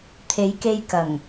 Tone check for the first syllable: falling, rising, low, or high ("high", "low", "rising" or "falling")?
rising